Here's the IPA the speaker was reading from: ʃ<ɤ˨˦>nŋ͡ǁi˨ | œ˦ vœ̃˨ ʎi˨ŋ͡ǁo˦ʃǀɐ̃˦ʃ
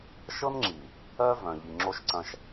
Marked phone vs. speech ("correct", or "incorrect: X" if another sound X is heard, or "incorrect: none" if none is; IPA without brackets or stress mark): incorrect: ɤ˦